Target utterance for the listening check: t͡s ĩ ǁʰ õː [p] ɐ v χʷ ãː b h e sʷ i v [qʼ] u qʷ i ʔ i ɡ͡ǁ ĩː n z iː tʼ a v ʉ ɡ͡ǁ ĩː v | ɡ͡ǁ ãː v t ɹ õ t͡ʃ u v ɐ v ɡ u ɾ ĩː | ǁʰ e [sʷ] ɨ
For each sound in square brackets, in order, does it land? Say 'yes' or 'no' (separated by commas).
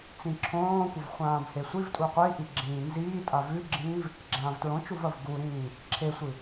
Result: no, no, yes